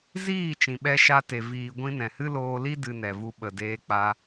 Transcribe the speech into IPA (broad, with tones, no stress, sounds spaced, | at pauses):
z iː˦˨ t͡ʃ ĩ˨ ɓ ɛ˧ ʃ a˧ t e˨ v iː˨ ɡʷ ĩ˧ n ɛ̃˨ h ɨ˦ l oː˧ l i˦ d ɨ˧ n ɛ˨ v u˧ ɓ ə˨ d eː˧ k͡p a˧